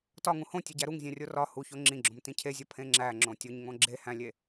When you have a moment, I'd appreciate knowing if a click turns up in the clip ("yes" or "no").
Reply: yes